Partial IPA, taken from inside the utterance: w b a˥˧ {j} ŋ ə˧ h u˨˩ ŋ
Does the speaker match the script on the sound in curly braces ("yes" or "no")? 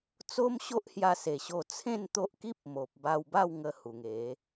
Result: no